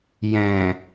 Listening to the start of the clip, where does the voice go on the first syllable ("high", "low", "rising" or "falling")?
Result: low